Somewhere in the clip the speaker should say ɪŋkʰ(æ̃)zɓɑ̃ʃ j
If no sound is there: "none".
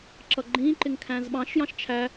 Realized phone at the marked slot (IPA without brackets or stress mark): æ̃